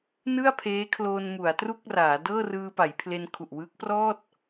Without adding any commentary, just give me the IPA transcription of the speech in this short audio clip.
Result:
nɯ˥˩a̯pʰeː˦˥kʰloː˧n mu˩˦a̯tru˥˩k̚raː˩˦ dɤː˥˩rɯː˧pa˩˦j pʰle˧nkʰu˨˩ʔwɯː˦˥k̚ prɔː˥˩t̚

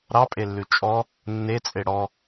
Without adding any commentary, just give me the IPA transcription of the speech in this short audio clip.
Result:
ɾɑpʼelːʉ t͡ʃʼɔ | nːet͡sʼe ɽɔ

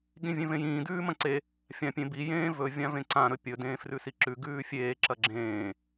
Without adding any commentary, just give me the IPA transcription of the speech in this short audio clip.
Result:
ɠĩvʲẽvẽjĩː dʉːmɐ̃ǀe | fʲãpʲẽbi jẽːvɵ vʲãvẽǀã ɾɵpʲɵ dẽːfrʉsiǁʉ ɡʉːfʲeː ǁɐɡ͡ǁẽː

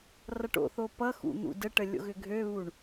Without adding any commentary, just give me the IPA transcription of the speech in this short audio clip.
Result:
rʌʈo̰θo pʌxṵ n̪ṵdəʈə lʲo̰ɣʏɡʱøβuɳ

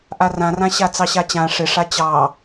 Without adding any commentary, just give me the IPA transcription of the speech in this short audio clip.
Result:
ʔarãrã ɕat͡sɑɕat͡ɕã ʂɪʂa t͡ɕɑ

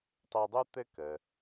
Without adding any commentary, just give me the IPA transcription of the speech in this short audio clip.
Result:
tˤɘ˧dˤu˥ t̪ɘ˥kə˩

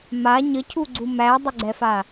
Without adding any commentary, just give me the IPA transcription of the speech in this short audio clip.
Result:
ma ɲəcʰuɡ͡ǀu mædˤəɡ͡ǀɛfa

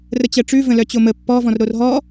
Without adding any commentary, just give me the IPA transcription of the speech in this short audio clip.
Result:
rət͡ɕɜʈ͡ʂʉ və̃lœt͡ɕomə pːɔ vɔ̃rɾorɦɔ

